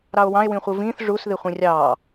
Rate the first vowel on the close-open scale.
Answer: open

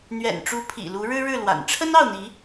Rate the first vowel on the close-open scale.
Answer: mid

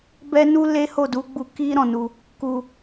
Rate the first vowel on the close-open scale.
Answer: mid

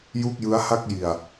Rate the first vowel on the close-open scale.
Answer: close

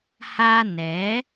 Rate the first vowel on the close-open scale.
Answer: open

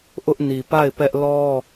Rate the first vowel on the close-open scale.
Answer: close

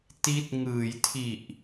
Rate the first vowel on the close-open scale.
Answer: close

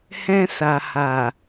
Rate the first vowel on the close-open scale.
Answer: mid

